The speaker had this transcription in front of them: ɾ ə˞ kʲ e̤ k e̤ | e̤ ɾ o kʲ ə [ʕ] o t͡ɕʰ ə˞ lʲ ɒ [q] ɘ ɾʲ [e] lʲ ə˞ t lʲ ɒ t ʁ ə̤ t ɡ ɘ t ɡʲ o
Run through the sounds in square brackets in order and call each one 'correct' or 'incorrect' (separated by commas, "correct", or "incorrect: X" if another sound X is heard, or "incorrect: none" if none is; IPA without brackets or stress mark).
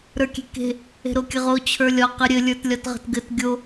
incorrect: ʁ, correct, incorrect: ɘ